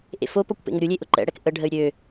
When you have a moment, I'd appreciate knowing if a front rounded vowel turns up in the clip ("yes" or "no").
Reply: yes